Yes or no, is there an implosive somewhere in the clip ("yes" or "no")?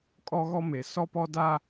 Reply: no